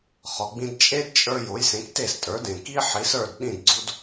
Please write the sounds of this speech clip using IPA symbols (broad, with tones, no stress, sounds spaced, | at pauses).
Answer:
χ ɒ˩ ɡ͡b ĩ˧ d t͡ʃʼ e˥ d t͡ʃʼ ə˞˧ j o˩˥ j s ẽ˩˥ k t e˥˩ s tʼ ə˞˩˥ d ẽ˩ k i˥ ħ i˩˥ s ə˞˥˩ d ɗ ĩ˥˩ d ɡ͡ǀ u˥ d